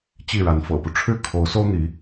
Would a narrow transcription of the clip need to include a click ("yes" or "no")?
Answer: no